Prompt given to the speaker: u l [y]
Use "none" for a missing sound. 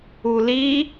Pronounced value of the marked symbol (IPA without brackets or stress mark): i